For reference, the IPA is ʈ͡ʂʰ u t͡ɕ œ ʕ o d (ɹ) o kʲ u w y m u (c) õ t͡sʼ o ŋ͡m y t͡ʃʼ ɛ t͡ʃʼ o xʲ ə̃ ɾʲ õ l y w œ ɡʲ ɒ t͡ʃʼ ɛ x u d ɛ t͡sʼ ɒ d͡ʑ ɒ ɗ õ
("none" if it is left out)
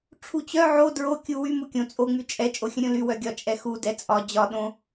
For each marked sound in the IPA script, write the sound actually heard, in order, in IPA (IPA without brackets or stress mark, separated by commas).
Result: ɹ, kʲ